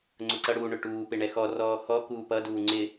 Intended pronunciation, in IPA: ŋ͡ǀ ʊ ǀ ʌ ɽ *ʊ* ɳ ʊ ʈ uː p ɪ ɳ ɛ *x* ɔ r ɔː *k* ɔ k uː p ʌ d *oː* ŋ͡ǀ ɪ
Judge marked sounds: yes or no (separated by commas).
no, yes, no, no